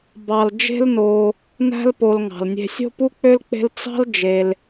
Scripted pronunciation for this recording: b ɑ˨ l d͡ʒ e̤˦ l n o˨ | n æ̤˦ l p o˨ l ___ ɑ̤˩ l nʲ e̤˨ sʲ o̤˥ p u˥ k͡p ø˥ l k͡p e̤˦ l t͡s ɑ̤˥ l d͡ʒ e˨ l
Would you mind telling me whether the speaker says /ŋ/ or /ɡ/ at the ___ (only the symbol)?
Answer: ŋ